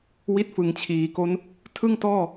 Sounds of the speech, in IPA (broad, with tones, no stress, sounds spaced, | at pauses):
w i˦˥ t̚ f ɯ˩˦ ŋ t͡ɕʰ iː˩˦ k o˦˥ n | tʰ ɯ˥˩ ŋ t ɔː˥˩